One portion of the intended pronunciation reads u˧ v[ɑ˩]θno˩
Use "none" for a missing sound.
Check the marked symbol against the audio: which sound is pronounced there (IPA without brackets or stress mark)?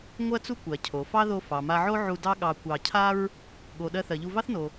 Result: ɑ˥